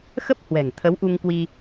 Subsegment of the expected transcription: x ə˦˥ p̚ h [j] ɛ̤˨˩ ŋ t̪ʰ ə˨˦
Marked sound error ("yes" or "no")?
yes